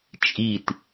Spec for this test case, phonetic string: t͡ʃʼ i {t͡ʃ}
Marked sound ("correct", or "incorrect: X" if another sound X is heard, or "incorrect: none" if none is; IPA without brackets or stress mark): incorrect: t